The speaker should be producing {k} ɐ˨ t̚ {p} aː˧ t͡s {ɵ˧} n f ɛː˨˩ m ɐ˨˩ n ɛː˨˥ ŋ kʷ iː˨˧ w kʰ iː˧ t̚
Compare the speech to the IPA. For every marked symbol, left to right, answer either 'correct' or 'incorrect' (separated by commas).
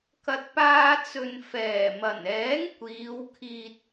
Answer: correct, correct, incorrect